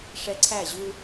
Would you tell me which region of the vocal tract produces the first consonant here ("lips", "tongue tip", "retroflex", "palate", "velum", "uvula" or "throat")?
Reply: retroflex